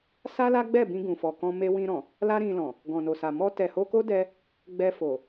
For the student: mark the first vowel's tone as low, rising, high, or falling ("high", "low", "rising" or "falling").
high